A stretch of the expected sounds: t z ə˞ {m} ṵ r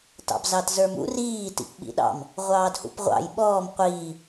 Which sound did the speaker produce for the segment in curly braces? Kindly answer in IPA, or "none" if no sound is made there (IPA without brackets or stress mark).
m